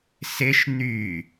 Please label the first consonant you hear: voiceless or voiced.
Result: voiceless